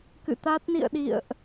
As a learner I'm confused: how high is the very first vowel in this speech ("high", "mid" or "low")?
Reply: high